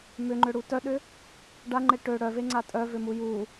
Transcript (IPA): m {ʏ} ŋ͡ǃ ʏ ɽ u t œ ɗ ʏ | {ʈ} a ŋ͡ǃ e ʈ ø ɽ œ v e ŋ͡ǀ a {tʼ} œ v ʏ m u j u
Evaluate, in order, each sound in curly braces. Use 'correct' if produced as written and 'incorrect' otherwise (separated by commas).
correct, incorrect, correct